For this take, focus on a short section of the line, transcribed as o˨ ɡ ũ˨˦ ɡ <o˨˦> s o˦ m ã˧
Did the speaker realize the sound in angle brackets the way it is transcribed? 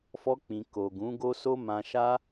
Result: no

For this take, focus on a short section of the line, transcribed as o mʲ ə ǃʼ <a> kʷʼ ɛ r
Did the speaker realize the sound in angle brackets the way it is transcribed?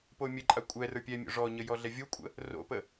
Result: yes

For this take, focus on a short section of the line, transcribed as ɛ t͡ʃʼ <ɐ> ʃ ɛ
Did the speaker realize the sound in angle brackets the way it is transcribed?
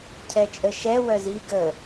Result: no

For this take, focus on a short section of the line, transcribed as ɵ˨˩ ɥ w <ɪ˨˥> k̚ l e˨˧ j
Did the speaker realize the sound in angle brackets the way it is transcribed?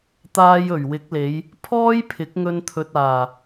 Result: yes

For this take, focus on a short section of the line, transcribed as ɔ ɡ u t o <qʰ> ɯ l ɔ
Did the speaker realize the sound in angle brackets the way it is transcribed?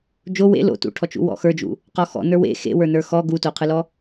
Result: yes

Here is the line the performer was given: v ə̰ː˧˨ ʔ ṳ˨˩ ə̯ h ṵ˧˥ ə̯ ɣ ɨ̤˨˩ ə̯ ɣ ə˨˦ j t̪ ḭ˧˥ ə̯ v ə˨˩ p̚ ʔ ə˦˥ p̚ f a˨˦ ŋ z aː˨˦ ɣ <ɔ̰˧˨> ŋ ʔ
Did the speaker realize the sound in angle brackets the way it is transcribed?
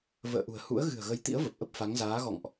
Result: yes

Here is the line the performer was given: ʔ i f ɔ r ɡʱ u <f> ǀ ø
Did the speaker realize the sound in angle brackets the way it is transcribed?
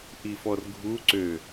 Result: no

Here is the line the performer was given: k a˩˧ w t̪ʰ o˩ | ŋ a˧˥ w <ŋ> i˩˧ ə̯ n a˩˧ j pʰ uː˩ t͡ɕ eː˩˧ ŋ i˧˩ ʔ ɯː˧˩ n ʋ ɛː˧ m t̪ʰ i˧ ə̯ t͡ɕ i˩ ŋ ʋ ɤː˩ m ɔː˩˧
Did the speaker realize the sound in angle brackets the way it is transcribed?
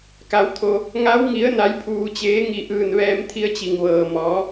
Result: yes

